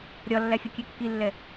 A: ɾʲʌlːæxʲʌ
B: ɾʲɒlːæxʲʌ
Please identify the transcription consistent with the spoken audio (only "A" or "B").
B